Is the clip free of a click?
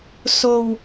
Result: yes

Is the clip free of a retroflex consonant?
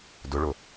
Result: no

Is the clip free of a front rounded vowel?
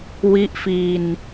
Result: yes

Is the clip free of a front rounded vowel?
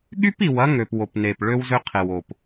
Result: no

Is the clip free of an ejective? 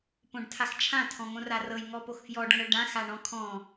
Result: yes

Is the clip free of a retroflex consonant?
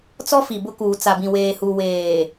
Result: yes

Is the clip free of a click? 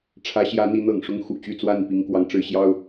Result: yes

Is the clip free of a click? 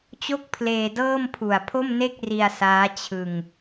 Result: yes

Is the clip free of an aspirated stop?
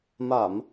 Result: yes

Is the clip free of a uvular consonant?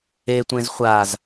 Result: no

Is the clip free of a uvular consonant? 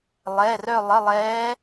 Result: yes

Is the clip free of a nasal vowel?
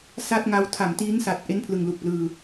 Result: yes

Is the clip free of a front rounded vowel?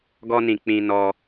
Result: yes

